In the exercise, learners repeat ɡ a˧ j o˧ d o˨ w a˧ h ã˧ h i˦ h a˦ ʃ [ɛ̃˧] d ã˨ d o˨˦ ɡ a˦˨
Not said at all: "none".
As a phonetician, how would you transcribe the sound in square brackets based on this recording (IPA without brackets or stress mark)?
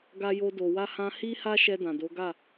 ɛ˧